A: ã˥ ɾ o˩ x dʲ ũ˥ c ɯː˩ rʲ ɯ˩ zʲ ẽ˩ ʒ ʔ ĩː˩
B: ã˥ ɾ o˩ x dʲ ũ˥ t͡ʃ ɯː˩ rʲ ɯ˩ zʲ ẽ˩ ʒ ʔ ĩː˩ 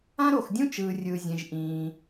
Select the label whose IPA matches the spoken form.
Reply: B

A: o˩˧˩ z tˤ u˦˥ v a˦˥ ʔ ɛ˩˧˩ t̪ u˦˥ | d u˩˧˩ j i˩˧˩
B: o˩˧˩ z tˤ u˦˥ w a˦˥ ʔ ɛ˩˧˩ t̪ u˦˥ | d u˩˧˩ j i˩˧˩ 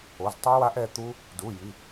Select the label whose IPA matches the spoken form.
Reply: B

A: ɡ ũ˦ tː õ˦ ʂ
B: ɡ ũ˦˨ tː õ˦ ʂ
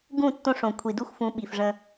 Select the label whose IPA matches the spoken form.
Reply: B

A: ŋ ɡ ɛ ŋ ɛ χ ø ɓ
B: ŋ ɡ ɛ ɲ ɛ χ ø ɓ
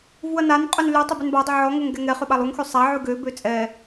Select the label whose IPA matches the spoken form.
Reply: A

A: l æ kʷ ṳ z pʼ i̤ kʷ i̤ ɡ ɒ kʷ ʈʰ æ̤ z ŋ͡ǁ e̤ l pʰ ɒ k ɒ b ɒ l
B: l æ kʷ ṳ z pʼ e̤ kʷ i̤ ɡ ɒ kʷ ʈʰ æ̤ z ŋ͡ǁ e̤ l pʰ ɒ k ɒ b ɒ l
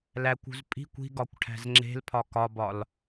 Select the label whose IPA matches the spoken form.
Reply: A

